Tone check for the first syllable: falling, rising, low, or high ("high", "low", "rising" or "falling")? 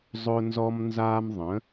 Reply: high